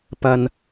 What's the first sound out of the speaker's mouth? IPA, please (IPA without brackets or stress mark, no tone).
p